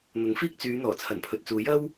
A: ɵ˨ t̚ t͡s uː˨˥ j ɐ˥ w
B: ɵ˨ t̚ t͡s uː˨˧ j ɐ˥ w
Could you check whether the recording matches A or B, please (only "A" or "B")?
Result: A